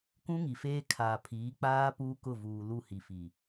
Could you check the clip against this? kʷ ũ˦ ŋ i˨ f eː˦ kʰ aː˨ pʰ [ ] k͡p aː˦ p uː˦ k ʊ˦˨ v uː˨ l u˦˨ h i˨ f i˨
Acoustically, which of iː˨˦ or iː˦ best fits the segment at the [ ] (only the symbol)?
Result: iː˨˦